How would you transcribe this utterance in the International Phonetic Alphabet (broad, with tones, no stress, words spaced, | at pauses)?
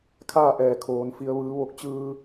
kʰaː˥˨ʔɛː˩ kʰoː˩˧n fi˩ə̯ʋɯː˩˧ ʋo˧k̚t͡ɕɯː˧